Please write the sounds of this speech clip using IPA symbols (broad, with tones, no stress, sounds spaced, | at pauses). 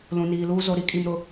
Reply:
l ũ˨ n iː˨ l uː˦ z o˨ ɾ i˦ kʼ i˨ m ɾ ʊ˨